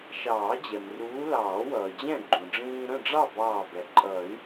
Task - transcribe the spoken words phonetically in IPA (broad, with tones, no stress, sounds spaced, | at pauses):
ʃ ɑː˨˩˦ d͡ʑ ɛ˩ m r uː˨˦ l ɑː˨˩˦ w ʌː˩ d͡ʑ ɛ̃˥˨ ɡ͡ǃ ũ˩ ɖ͡ʐ ĩː˦ ɾ ə̃˥˨ ɖ͡ʐ ɑ˥˨ b ɑː˧˩ b ɛ˩ ǃʼ ʌ˨˩˦ y̯